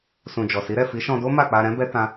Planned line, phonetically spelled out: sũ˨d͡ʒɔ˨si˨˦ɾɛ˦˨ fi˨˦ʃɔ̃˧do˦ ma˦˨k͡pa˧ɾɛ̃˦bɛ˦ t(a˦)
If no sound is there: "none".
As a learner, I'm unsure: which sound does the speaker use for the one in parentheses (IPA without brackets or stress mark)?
ã˦